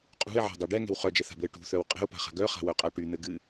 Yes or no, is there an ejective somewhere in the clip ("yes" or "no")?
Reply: yes